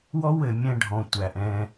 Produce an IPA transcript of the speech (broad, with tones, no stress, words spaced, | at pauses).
wɔ˦wɘ˨ mʲɛ̃˧ɖʱɔ̃˨tʷæ˨ʔ ɛ̃˧